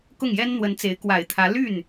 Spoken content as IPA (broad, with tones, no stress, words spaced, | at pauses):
kʊ˥˩ŋjɛ˥n n̪wə˧˥nt͡se˧˥ɪ̯ kwa˨˩ɪ̯t̪ʰä˧˥ ly˥˩n